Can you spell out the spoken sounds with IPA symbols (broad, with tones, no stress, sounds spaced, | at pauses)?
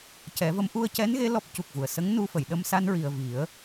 c ɛ˨˩˦ v ə˧˥ m ʔ u˧ ə̯ c ɛ˧˥ n ɣ e˧˥ l ɔ˦˥ p̚ c u˨˩ k̚ v u˨˩˨ ə̯ s ə˧˥ ŋ n u˧ f ə˨˩˨ j ɗ ə˧ m s a˧ n ɹ i˨˩ ə̯ v i˨˩˦ ə̯